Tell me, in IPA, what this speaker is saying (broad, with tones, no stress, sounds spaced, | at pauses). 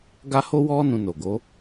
ɡ a˦ h o˦ w ɔ˦ n ũ˧ n o˨ ɡ o˨˦